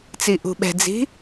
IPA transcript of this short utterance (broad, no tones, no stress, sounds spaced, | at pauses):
t͡s i ʔ ṳ ɓ ɛ̤ d͡z i̤